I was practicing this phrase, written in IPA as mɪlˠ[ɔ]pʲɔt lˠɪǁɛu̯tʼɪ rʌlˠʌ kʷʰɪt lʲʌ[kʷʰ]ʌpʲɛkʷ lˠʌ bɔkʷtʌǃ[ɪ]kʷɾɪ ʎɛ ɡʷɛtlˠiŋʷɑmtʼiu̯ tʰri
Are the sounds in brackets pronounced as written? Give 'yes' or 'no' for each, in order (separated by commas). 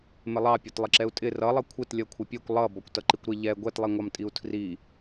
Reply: no, yes, no